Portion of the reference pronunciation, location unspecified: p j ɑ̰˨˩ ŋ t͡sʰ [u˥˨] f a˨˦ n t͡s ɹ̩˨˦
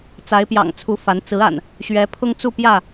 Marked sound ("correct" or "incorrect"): incorrect